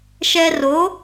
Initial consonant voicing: voiceless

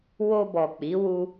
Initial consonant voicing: voiced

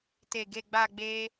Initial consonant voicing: voiceless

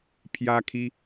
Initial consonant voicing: voiceless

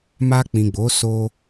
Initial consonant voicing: voiced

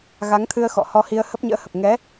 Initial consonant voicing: voiced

